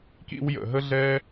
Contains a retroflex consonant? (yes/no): no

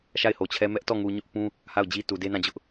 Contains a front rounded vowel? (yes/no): no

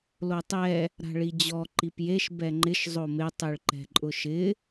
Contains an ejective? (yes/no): yes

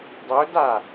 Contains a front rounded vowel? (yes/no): no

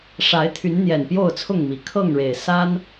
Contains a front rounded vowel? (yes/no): yes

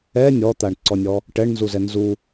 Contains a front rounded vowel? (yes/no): no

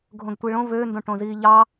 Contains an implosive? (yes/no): no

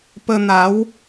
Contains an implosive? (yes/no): no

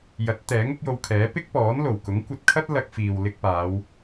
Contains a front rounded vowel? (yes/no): no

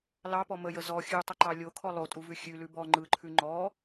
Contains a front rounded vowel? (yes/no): no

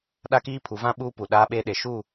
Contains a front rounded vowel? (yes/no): no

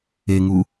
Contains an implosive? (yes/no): no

